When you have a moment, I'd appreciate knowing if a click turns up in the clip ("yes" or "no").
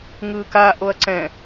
yes